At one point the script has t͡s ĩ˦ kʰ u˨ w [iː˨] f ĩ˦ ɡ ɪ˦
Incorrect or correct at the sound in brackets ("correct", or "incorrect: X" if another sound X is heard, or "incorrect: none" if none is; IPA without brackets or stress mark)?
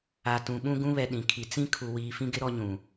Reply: correct